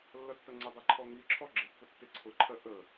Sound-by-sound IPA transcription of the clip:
lː ʌ tː ʌ ŋ͡ǀ ɪ dˤ ɛ ǃʰ ɔ ŋ i ǁʰ ɔ ɡ͡ǁ ɪ pː ʊ tː ɪ ǀʰ ʊ ǃʰ ɜ ʔ ə

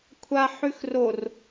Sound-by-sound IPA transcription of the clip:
kʷʰ a ħ ʉ x r o r

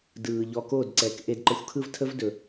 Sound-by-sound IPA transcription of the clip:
d ɯː˨ ʎ ɔ˧ k o˦˨ d ǀ ɛ˨ k ʔ e˧ d ǃ ə˧ xʷ kʰ ɯ˦ v tʰ ə˦ v d ɵ˨

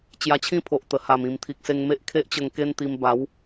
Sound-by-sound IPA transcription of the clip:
t͡ɕ j a˧ t͡ɕʰ ĩ˥˧ pʰ o˨ ʔ t̪ ə˨˩ h a˨˩ m ĩ˨˩ m t̪ʰ i˨ k̚ s e˧ ŋ m e˦ ʔ kʰ e˦ ʔ t͡ɕ ə˧ ŋ k e˦ n t̪ i˧ m b a˨˦ w

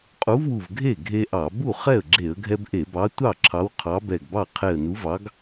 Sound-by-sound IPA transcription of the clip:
qʼ u˨˥ v w u˧˩ v ɡʱ e˥˩ ɡʱ e˦ ʔ ɑ˧˩˧ b u˥˩ χ ɛ˥˩ ə̯ ɡ͡ǁ e˧˩˧ ə̯ ɡʱ ɛ˦ b ʔ e˧˩˧ b ɑ˨˥ tʷ ɑ˥˩ ǁʰ ɑ˨˥ w qʰ ɑ˨˥ b ɛ˧˩ ɡ b ɑ˥˩ qʰ e˧˩ ə̯ n u˨˥ v ɑ˨˥ ɡ

